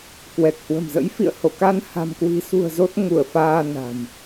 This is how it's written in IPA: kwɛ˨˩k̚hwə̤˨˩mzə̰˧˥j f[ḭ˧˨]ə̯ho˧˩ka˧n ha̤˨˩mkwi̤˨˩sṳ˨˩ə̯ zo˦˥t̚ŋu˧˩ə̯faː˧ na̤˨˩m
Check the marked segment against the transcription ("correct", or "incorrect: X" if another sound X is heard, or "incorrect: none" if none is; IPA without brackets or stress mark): correct